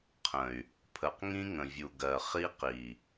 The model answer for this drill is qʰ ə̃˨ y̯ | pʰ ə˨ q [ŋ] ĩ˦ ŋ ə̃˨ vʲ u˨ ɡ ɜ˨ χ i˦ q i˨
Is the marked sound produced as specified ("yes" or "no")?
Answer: yes